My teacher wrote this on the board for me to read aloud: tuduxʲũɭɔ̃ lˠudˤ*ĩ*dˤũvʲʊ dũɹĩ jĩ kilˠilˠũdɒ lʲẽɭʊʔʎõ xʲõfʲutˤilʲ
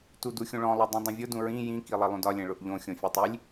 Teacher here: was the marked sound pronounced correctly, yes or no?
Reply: yes